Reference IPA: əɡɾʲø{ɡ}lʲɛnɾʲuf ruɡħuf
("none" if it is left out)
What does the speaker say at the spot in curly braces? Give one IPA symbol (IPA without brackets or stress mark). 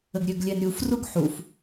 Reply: ɡ